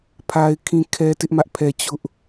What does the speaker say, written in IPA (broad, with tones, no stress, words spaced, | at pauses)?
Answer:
pʰa˦ɪ̯kʰĩ˦kʰɛ˦ tɪ˦ʔmä˦ʔpʰɛ˦ t͡ɕʊ˦ʔ